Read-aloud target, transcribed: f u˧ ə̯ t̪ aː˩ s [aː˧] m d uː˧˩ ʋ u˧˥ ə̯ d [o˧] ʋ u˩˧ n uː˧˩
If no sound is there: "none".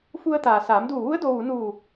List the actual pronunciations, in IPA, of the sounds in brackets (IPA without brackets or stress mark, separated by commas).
aː˩˧, o˧